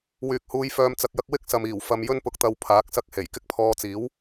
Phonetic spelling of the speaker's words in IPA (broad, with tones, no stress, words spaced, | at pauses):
wyː˨k̚huː˧jfœː˧m t͡sɐ˧k̚jɐ˥k̚ wɪ˥k̚sɐ˨miː˨˩w fɐ˧m jɵ˥npʊ˧k̚t̪ɐ˧w pʰaː˨˥k̚sɐ˥k̚ he˨˩jkɪ˥k̚pʰɔː˧t͡siː˨˥w